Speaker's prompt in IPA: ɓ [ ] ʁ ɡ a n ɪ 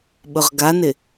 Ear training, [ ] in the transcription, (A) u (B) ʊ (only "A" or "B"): B